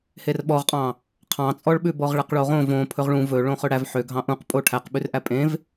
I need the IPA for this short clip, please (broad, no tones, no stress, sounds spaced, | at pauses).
h e r ɓ ɔ ʁ qʼ ɑ̃ | qʰ ɑ̃ t͡sʼ ɔ ɭ ɓ ʉ b ɔ ʁ ɭ ɛ q ɭ o ʁ õ v õ pʰ ɵ ʁ ɭ ũ v ɵ ɭ õ χ ɵ ɽ æ v ħ ø ɡʱ ɑ̃ ʔ ũ q pʼ o ʈʰ æ q ɓ ʉ r ʔ æ pʼ ẽ v